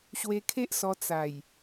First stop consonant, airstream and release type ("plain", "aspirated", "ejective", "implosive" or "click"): aspirated